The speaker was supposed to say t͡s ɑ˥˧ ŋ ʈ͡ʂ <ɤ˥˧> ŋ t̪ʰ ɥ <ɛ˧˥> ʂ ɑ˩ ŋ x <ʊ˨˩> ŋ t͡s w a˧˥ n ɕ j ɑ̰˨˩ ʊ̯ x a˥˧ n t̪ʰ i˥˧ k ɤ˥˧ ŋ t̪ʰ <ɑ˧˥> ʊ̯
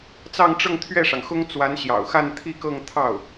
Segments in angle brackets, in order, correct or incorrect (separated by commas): correct, incorrect, incorrect, incorrect